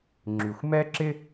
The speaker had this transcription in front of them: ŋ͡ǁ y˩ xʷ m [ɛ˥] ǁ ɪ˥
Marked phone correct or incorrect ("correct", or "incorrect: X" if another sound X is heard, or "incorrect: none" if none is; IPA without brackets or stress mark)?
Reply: correct